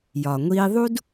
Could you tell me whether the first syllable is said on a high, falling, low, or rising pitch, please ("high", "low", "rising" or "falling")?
low